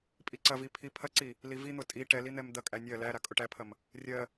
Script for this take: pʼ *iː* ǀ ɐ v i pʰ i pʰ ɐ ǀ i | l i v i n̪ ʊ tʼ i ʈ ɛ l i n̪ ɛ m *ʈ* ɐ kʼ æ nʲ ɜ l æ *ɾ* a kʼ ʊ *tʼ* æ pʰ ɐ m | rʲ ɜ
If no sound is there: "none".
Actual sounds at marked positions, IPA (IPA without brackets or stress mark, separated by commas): i, d̪, ɾ, ʈ